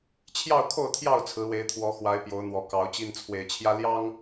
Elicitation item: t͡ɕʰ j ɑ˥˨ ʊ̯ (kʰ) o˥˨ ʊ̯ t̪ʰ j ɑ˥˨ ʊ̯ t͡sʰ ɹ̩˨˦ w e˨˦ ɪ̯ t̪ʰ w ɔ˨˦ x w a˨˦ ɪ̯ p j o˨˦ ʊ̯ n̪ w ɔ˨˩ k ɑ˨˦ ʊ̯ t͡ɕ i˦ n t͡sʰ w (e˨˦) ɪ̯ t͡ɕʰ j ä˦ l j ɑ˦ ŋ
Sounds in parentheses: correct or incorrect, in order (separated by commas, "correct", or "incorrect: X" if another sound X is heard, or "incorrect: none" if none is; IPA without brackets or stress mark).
correct, incorrect: e˨˩